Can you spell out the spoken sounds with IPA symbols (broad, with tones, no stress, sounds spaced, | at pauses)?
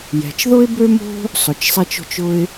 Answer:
j ɛ̤˩ t͡ʃ ð ʊ˥ ɪ̯ b ø˥ m o̤˥ | sˤ ʊ˩ t͡ʃ sˤ ɛ˧ t͡ʃ o̤˧ t͡ʃ ʊ˧ ɪ̯